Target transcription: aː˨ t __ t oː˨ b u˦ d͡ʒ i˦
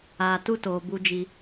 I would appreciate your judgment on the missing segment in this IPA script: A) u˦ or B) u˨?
A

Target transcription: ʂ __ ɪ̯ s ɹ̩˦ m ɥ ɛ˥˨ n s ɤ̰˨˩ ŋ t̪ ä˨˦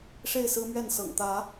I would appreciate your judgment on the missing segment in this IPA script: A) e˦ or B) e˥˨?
B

